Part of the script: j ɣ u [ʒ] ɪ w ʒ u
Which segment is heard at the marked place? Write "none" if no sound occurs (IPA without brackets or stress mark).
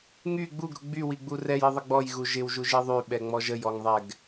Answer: ʒ